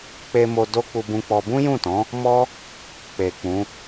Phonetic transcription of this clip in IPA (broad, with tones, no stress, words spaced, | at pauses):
k͡pe˧mo˧ do˦ k͡pu˧bũ˧k͡pɔ˧ bũ˦jũ˦˨tɔ̃˨˦ | mɔ˦ | k͡pe˨k͡pũ˨˦